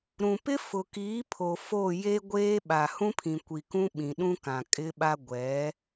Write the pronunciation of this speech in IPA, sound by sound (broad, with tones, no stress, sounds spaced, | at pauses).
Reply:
ɾ ũ˨ p ɪ˦ f ʊ˨ k iː˨˦ pʰ o˨ f o˦˨ j e˦ ɡʷ eː˦ ɓ a˨ h ũ˦ pʰ ĩ˨ kʷ i˨ k ũ˦ ɓ ĩ˨ ɗ ũ˦ k ã˨ kʼ ɪ˦ ɓ a˦ ɡʷ ɛ˨˦